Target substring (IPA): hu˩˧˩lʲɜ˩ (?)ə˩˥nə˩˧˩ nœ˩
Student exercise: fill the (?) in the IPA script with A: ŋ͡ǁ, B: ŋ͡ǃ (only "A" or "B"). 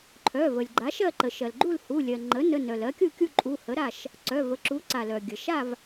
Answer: B